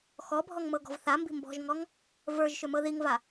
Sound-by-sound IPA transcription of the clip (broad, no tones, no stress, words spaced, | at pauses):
xɔbʱɔŋ mɤɡɔ̤vθambi̤ mbɔ̤ʒŋɔŋ | və˞ʒʃʏ mɤðiŋva